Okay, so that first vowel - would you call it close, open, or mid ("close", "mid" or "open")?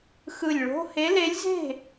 close